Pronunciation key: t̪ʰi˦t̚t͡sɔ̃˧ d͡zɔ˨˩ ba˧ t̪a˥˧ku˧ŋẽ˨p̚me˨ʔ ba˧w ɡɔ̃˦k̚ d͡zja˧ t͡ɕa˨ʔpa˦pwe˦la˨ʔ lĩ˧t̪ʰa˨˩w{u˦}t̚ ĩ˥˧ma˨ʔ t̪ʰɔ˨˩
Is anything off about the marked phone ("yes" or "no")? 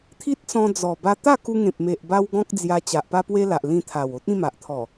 yes